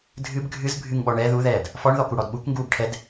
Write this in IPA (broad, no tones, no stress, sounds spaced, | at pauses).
dʱ ɨ b ɡʱ ɨ z bʱ ɨ ŋ ɓ ɔ ɳ ɛ ð u ð ɛː d | f ɔ ɳ ð ɔ k u ɽ ɔ d ɓ u k ŋ ɡ uː b ʈʰ ɛ d